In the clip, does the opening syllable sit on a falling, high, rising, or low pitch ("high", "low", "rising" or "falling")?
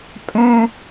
high